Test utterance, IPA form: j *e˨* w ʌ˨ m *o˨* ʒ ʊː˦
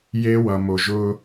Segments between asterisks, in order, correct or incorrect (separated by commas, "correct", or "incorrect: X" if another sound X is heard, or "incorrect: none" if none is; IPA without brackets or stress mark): incorrect: e˦, correct